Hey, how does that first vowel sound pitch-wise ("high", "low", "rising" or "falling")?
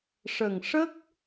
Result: low